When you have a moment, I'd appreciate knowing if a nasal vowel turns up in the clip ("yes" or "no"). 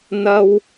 no